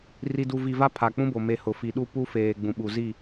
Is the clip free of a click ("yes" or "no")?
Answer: yes